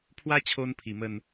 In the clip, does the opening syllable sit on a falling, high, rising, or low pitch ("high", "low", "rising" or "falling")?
high